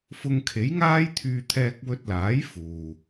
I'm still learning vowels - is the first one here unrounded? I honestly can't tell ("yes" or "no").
no